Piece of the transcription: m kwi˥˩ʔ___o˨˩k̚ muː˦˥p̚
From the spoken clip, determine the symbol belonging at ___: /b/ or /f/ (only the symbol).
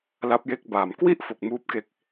f